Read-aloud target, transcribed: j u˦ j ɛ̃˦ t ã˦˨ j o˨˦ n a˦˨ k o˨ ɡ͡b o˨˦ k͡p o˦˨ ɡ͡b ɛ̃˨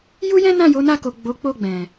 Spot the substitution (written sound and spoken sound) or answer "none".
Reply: t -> n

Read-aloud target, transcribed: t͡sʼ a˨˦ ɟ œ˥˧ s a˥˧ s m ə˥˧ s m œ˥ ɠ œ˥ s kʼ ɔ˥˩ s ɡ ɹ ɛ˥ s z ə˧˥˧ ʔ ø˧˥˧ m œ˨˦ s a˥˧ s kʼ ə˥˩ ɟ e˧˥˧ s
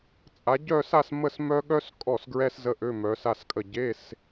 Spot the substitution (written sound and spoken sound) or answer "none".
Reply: none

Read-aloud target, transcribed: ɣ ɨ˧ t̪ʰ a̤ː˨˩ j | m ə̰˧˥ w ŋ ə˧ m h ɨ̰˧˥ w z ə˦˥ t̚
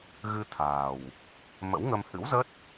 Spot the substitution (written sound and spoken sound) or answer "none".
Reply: j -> w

